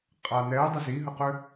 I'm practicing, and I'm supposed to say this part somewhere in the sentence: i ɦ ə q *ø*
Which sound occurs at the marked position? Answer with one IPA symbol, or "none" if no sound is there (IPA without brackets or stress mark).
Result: ø